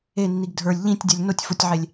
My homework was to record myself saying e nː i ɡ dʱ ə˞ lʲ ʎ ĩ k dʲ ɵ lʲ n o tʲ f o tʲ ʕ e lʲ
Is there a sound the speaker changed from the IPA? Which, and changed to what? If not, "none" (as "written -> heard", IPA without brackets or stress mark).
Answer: k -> tʲ